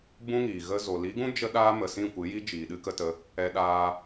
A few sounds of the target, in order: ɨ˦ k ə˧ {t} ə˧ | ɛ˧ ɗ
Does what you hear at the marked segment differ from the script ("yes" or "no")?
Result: no